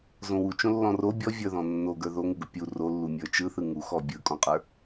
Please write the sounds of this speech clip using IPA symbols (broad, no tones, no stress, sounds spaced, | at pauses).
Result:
z õ w u t͡ʃ õ lː ɔ̃ r o bʲ ɔ vʲ ə˞ ð ɔ̃ nː o ɡ ə˞ ð o ŋ u ɡ ʊ pʲ u r o lː u mʲ ə˞ t͡ʃ ɯ θ ɯ ŋ u x ɔ bʲ ɯ kʼ ɔ̃ qʼ ə˞